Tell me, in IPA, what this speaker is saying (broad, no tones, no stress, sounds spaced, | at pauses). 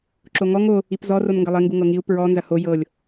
ǁ o ŋ ɔ ŋ o | i p z ɔ r o n ŋ ɡ ɐ lˠ e ŋ ɡ u ŋ ɤ ŋ i u̯ p ɹ ɔ n z ɐ h o j ɤ lʲ